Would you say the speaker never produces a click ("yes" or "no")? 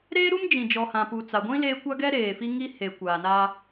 yes